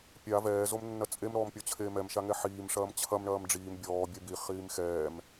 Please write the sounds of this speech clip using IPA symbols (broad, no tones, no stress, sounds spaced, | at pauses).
pʲ a v ɛː z o m nː ɐ t͡sʼ e m ɾ ɔː m pʲ ɔ t͡ɕʰ eː m ɛ m ʃ a ŋ ɛ ħ iː m ʂ ɐː m t͡ɕʰ ɐ m ɳ ɐː m ɖ͡ʐ iː m bʲ ɔː bʲ ɛ b i χ iː m x ɛː m